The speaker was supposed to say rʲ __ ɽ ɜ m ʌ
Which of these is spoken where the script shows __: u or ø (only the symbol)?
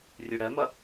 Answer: u